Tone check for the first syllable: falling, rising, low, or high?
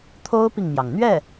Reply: high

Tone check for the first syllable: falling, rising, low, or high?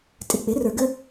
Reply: low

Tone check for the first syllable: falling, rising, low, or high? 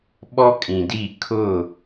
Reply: high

